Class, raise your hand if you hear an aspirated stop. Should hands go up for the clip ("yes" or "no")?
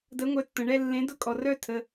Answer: yes